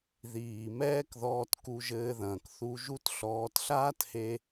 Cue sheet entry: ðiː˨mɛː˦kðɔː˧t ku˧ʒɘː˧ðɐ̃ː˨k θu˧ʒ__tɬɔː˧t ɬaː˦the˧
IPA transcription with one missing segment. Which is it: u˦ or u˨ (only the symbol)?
u˦